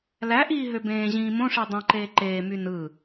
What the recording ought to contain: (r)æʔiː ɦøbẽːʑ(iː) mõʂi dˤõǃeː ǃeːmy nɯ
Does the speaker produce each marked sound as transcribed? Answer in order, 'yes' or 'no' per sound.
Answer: no, no

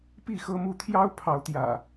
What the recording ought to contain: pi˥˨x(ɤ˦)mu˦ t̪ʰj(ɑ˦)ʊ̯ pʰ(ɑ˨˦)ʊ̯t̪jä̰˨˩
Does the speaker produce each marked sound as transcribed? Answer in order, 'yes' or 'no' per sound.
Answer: yes, yes, yes

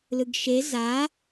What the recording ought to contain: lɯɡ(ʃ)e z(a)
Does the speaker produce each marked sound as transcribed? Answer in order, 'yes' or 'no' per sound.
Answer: yes, yes

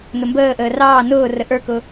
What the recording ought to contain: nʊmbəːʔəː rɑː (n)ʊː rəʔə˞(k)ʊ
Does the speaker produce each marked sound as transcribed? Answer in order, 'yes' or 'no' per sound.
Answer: yes, yes

